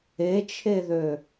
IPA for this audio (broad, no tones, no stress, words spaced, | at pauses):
et͡ʃʰeðø